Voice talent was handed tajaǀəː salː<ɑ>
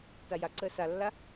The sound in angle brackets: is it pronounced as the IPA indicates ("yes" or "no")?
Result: no